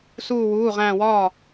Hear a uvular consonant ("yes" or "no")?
yes